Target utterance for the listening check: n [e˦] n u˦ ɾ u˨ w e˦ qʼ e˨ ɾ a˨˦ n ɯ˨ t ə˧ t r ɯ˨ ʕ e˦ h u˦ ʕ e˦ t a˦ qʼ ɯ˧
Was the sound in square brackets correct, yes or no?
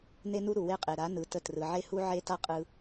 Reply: yes